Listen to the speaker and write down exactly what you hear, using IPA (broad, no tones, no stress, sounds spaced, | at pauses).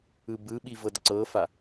ɯ b ɯ ɓ i v ɤ d ǀ ɤ f a